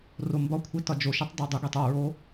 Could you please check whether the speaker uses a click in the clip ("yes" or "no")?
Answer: no